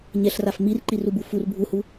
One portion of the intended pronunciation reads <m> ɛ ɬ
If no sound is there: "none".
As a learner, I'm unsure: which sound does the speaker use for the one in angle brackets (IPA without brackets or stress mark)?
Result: ɲ